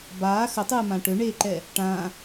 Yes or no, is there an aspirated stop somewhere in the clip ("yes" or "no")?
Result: no